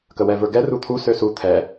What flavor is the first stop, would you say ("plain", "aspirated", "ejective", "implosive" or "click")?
plain